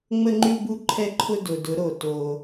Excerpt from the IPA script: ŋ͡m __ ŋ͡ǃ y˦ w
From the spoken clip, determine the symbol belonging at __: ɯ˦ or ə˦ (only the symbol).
ə˦